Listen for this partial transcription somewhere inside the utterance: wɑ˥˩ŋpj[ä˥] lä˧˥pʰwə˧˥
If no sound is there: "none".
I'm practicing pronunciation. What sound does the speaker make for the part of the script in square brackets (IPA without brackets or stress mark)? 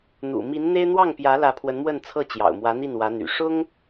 ä˧˥